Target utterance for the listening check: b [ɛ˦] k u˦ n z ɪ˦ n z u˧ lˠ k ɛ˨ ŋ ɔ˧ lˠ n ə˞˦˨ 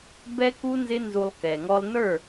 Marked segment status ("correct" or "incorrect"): correct